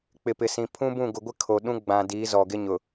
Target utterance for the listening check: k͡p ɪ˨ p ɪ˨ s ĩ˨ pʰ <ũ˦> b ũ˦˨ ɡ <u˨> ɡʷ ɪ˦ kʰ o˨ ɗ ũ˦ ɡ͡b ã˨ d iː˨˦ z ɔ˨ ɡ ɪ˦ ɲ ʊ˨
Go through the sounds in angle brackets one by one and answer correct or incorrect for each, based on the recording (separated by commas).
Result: correct, incorrect